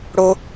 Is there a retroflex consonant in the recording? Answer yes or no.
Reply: yes